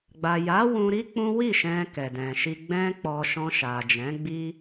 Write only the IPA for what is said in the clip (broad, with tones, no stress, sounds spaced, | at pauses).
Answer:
ɡ͡b a˨ j a˨˦ w ũ˧ ɾ i˦ k͡p ũ˦ w i˦˨ ʃ ɛ̃˧ k ɛ˨ d ɛ̃˨ ʃ i˧ ɡ͡b ɛ̃˦ k͡p ɔ˧ ʃ ɔ̃˧ ʃ a˨ d͡ʒ ɛ̃˨˦ ɡ͡b i˦